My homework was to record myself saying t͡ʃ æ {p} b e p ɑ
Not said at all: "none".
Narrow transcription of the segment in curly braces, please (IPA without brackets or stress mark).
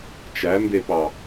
m